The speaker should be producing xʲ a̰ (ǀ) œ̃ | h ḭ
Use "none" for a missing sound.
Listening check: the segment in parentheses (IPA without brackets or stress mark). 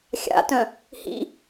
t